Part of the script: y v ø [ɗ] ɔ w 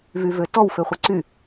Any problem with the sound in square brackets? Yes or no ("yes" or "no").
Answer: yes